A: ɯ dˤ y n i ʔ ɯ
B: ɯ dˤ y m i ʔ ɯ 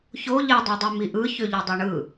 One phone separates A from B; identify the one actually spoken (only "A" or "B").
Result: B